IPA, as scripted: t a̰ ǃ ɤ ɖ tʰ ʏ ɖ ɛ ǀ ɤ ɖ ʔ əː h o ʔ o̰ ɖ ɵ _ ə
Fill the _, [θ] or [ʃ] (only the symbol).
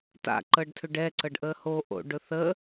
θ